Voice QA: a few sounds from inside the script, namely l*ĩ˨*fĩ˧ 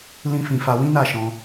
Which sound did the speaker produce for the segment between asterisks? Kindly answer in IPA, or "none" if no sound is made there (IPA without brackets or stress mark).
ĩ˦